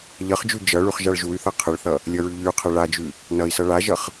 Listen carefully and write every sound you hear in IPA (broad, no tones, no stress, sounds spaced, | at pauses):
ʎ ʌ χ d͡ʒ ʉ d͡ʒ ʌ ɭ ʉ χ ʒ a ɭ ʒ u y̯ θ ʌ qʰ ə ɭ θ ʌ | lʲ ʌ ɹ ʉ ʎ y u̯ qʰ ɛ ɭ a d͡ʒ ʉ | n ʌ i̯ s ʌ ɭ a ʒ ʌ χ